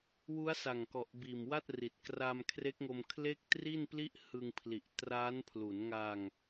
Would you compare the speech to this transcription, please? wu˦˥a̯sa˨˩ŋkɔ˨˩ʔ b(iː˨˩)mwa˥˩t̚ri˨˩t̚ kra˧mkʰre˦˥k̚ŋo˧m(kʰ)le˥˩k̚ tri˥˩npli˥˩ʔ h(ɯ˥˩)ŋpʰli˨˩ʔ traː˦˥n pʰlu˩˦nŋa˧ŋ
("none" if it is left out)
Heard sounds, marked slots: iː˨˩, kʰ, ɯ˧

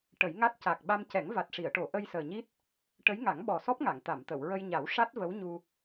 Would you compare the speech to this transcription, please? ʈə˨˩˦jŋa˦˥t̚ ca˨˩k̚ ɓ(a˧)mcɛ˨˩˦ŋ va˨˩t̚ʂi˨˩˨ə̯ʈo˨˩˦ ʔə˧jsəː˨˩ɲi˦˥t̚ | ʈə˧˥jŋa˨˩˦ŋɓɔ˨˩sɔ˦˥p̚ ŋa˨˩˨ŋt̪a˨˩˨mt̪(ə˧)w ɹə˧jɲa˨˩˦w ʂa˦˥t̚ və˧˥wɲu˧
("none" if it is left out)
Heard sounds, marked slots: a˧, ə˨˩˨

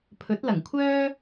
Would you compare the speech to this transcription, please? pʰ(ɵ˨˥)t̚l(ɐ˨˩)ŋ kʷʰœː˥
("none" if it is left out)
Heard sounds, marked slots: ɵ˨˥, ɐ˨˩

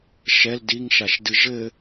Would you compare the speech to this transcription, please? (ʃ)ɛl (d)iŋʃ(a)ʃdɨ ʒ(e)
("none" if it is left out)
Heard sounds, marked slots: ʃ, d, a, ɘ

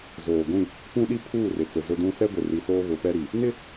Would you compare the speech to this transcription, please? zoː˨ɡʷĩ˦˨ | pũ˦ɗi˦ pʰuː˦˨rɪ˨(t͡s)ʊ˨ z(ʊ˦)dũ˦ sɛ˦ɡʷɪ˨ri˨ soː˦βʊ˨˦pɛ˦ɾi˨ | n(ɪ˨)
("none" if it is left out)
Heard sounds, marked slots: t͡s, ʊ˦, ɪ˦

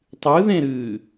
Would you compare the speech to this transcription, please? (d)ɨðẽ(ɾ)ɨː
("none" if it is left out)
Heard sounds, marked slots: tˤ, ɾ

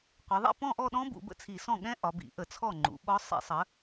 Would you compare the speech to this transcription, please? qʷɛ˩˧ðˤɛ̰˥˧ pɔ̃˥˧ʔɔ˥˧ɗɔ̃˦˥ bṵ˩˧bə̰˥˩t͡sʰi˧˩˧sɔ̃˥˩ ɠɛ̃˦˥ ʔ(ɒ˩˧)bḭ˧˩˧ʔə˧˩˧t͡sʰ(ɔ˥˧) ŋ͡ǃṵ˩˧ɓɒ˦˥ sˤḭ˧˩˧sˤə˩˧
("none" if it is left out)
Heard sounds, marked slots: ɒ˩˧, ɔ˥˩

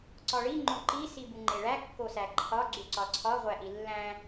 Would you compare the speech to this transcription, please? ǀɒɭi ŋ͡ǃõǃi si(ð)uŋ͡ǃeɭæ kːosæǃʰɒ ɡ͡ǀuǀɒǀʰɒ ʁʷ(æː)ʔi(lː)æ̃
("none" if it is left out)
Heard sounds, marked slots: b, æ, lː

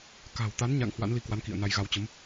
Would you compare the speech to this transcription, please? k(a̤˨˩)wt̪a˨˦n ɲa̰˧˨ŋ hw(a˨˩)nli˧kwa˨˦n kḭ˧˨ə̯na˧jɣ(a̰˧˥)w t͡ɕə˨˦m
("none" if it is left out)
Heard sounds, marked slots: a̤˨˩, a̰˧˥, a˧

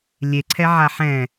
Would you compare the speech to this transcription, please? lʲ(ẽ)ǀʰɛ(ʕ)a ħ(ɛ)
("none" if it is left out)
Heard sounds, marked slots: e, ʕ, ɛ̃

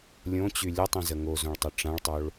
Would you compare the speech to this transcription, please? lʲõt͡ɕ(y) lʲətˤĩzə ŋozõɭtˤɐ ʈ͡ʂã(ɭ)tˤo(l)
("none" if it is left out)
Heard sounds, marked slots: y, ɭ, ɭ

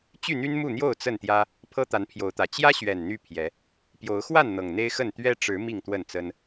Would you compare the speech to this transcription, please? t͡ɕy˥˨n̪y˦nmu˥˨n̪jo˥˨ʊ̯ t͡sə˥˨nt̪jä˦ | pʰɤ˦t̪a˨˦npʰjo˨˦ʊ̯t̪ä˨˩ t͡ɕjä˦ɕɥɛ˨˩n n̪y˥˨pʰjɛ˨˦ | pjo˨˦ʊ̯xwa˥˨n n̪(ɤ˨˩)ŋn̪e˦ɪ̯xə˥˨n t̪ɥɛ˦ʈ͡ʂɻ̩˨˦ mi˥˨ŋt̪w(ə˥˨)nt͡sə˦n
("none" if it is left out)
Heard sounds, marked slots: ɤ˨˩, ə˥˨

